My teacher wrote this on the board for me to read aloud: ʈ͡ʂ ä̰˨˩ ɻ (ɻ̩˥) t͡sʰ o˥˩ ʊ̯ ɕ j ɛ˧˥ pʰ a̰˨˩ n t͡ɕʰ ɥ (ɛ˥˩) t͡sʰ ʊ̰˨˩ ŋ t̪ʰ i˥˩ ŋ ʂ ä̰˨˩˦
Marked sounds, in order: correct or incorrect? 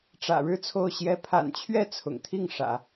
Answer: incorrect: ɻ̩˥˧, correct

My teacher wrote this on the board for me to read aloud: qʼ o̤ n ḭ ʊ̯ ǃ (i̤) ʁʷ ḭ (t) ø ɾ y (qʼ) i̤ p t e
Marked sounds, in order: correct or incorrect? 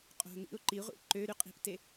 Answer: incorrect: i, incorrect: ǃ, correct

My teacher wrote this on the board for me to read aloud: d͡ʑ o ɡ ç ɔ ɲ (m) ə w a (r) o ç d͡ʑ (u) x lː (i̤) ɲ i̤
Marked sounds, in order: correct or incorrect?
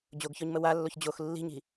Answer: correct, incorrect: lː, incorrect: o, correct

